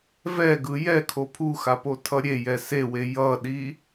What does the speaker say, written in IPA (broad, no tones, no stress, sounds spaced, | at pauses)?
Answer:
v ɛ ɡ ɯ j ɛ kʰ o pʰ u x a p o tʰ ʌ ɾʲ e j ɛ s e w e j ʌ ɗ i